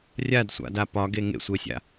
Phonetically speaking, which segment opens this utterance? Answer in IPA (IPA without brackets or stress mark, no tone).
rʲ